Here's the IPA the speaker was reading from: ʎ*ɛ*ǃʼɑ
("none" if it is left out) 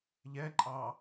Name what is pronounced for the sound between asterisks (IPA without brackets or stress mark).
ɛ